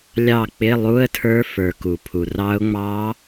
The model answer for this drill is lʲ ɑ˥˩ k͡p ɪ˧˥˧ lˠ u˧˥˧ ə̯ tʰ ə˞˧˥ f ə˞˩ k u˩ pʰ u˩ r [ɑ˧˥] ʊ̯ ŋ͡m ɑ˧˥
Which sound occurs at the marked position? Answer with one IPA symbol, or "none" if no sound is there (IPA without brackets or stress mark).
ɑ˧˥